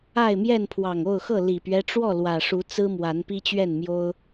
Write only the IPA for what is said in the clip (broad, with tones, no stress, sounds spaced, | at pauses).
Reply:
a˥˨ ɪ̯ m j ɛ˥˨ n pʰ w ɑ˨˩ ŋ o˥˨ ʊ̯ x ɤ˥˨ l i˨˩ p ɥ ɛ˦ ʈ͡ʂ w ɔ˥˨ l w ä˨˩ ʂ u˨˦ t͡s ɹ̩˦ m w a˨˦ n p i˦ t͡ɕ ɥ ɛ˥˨ n m j o˦ ʊ̯